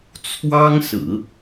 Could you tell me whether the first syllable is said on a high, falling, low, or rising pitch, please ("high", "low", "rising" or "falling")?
high